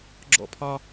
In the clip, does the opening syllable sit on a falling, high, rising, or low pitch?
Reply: high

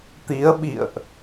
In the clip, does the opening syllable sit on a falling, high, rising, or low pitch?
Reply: rising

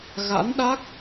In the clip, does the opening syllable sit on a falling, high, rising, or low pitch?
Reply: rising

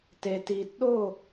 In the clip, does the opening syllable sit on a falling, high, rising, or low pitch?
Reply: low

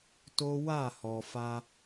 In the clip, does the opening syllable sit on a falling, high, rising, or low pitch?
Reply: high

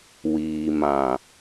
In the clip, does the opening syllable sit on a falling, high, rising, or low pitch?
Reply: low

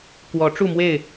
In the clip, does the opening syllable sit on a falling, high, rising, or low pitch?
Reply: rising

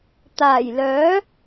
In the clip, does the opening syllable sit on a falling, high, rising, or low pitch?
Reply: low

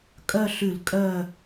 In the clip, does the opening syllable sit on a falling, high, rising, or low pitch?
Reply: falling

